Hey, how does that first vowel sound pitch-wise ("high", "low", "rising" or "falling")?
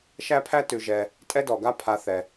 high